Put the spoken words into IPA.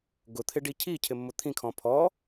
ɡ ʊ t̪ʰ ɪ ɖ i cʰ i cʰ ɪ mː ʊ t̪ʰ ĩ kʰ ɔ̃ pʰ ɔ

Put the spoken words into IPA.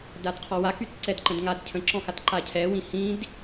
d a d qʰ ɔ w a k y t ǀ ɛ d ǃ ə̃ d ŋ a d cʰ ə̃ ǁ ɔ̃ x a t ǃ a cʰ ɛ w ĩ h ĩ d

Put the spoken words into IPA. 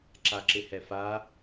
ǁ a ǁ ɪ h ɛ f a

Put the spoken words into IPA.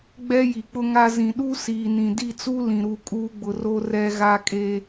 ɡ͡b ɛ˦ j i˨ k͡p ʊ˦ ŋ a˦ z ĩ˨ ɗ u˦ s iː˨ n ĩ˨ d i˦˨ t͡s u˦ l ĩ˨ ɾ u˦˨ kʼ uː˦ ɡ͡b ʊ˨ r o˦ r ɛ˦ ɣ a˦ kʼ e˦

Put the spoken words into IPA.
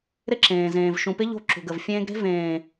ɾ ɪ˦ ǁ ẽː˨ z ẽː˨ v ʃ ũ˨ p ɪ˦ ʎ o̤˦ ǁ ṳ˨ ɡ ə˨ v fʲ ẽː˦ ɡ ɾ e̤˦ v ẽː˨

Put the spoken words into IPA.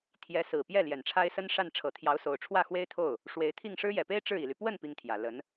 t̪ʰ j ɛ˧˥ s ɹ̩˨˩ p j ɛ˥˩ l j ɛ˨˩ n ʈ͡ʂʰ a˥ ɪ̯ s ə˥ n ʂ a˥˩ n ʈ͡ʂʰ ɤ˨˩ t̪ʰ j ɑ˧˥ ʊ̯ s o˨˩ ʊ̯ ʈ͡ʂʰ w ä˥˩ x w e˥ ɪ̯ t̪ʰ o˥˩ ʊ̯ | ʂ w e˧˥ ɪ̯ t̪ʰ i˥˩ ŋ ʂ ɻ̩˥ j ɛ˨˩ p e˥ ɪ̯ ʈ͡ʂ ɻ̩˥˩ i˨˩ l y˦ p w ə˥˩ n p i˥ ŋ t̪ʰ j ä˨˩ l ə˧˥ n

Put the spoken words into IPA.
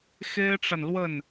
x e˥ ɪ̯ ʈ͡ʂ a˨ n l w ə˥˩ n

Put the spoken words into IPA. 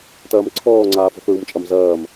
t ɐː m ǀʰ ɔː ŋ͡ǀ aː f ɔ̤ θ ɹ u m t͡ʃʼ ɐ m z ɐː m

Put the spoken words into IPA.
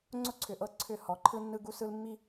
ŋ͡ǀ ʊ˦ ǀʰ ʏ˨ ʔ ɤ˦ ǀʰ ʏ˦˨ h ɔ˨˦ ǃʰ ɯ˦ nː ɯ˦ ɡ u˦ s ɯ˦ l mː i˦

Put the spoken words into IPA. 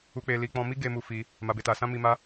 u˧ k͡p e˧ l i˧ k͡p ɔ̃˧ m i˦ ɡ e˧ m u˧ f i˧ | m a˨ b e˨ t a˨ s ã˧ m i˧ m a˦

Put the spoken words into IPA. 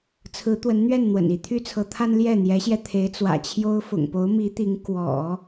t͡sʰ ɹ̩˧˥ t̪ w ə˧˥ n n̪ ɥ ɛ˥˩ n n̪ w ə̰˨˩ n i˧˥ t̪ʰ y˥ t͡sʰ ɤ˧˥ t̪ʰ a˥ n l j ɛ˥˩ n̪ j ɛ˧˥ ɕ j ɛ˧ t̪ʰ e˧˥ ɪ̯ t͡s w ä̰˨˩ t͡ɕʰ j o˥ ʊ̯ f ʊ̰˨˩ ŋ p o˧˥ ʊ̯ m i˧˥ t̪ i˧˥ ŋ k w ɔ̰˨˩˦

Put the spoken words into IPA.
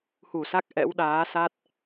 h u˧˩ s a˦˥ k̚ ʔ ɛ̰˧˥ w ɗ aː˨˦ s a˦˥ t̚

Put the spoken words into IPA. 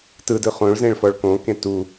t ɯ d ɯ χ õ ɭ z ẽ ɭ f ɔ ɭ k õ k ẽ t u

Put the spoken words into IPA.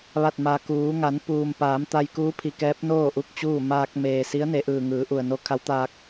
ʋ a˧˩ t̚ m a˩ k uː˩˧ ŋ a˩˧ n p uː˩ m p aː˩˧ m t̪ a˧ j k uː˧˥ pʰ i˩ k ɛː˧˥ p̚ n oː˥˨ ʔ u˥˨ k̚ t͡ɕ uː˥˨ m aː˧ k̚ m eː˩ s i˧˥ ə̯ n e˩˧ ʔ ɯː˩ ŋ ɯː˩˧ ʔ u˩ ə̯ n o˧˥ kʰ a˧˥ w t̪ aː˧ k̚

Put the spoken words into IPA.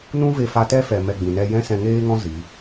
n ũ˦ v e˧ f a˧ t ɛ˦ f ɛ˨ m ɛ˧ ɡ͡b ĩ˨ n ɛ˦ j ɛ̃˦ s ɛ̃˧ ŋ eː˦ ŋ ɔ̃˦ z i˨˦

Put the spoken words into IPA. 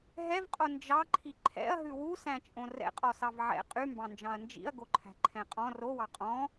ɦ ɛ v qʼ o n d͡ʒ ɑ ǃʰ i ǃʰ ɛ̰ ɐ̯ ɦ ʉ w u s æ̃ t͡ʃʼ õ r ɛ̰ qʼ ɔ s ɑ v ʕ ɛ̰ qʼ y m b ɑ̃ n d͡ʒ ɑ̃ ɐ̯ n d͡ʒ ḭ ɐ̯ ɡ o ǃʰ æ̤ ǃʰ ɛ̃ qʼ ɔ̃ r o w ɑ qʼ ɔ̃

